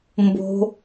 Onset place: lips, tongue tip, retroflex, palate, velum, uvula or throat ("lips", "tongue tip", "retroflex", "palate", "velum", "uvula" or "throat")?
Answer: lips